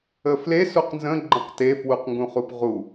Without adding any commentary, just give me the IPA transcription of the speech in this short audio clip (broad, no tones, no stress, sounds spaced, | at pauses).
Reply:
ə f l e s u q n z ə̃ ɡ͡ǃ ə̃ q t e f w u q ŋ ɡ ũ χ u p ʁ u